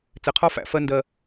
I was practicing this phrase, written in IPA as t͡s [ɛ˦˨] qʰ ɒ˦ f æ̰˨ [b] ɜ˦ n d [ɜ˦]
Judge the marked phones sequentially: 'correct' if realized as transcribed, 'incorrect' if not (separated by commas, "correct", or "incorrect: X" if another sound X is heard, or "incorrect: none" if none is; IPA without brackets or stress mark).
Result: incorrect: ɛ˨, incorrect: f, correct